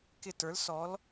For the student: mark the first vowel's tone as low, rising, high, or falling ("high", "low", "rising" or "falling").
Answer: falling